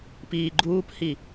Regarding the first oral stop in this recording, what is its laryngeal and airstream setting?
plain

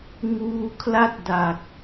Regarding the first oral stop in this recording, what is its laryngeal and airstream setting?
aspirated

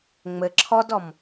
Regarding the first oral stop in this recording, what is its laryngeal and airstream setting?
click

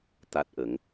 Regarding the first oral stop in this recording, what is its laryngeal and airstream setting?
plain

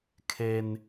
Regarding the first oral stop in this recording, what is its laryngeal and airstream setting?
aspirated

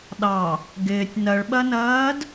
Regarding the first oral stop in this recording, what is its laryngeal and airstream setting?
implosive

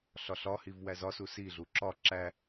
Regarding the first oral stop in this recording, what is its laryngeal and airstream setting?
click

